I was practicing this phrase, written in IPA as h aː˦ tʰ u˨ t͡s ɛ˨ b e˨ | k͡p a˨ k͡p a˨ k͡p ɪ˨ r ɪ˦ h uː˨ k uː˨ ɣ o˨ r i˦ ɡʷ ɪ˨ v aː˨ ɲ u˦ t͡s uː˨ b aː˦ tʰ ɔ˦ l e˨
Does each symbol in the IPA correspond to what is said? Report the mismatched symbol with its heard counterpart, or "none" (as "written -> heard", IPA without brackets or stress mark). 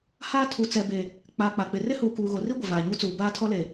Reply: none